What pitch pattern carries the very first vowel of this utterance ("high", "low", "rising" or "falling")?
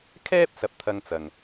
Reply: high